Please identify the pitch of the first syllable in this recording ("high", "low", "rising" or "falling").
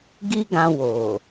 high